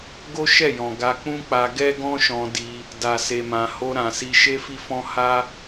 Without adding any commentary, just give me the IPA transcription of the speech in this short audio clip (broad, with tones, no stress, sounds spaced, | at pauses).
ɡ o˦ ʃ ɛ˦˨ j ɔ̃˨ ɡ a˧ k͡p ũ˦ k͡p a˧ ɡ ɛ˦ ɡ ɔ̃˦ ʃ ɔ̃˧ d i˧ | d a˨ s e˨ m ã˨ h o˧ ɾ ã˨ s i˧ ʃ e˦ f i˦ f ɔ̃˦ h a˦